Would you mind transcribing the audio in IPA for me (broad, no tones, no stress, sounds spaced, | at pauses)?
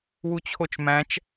w u t͡ɕʰ o t͡ʃ m æ̃ t͡ʃ